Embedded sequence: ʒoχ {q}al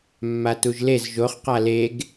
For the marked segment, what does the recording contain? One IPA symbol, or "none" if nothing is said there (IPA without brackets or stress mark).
q